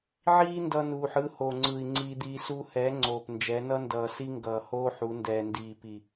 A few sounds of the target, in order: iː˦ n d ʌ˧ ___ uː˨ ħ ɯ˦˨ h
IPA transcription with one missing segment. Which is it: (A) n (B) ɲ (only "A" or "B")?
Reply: A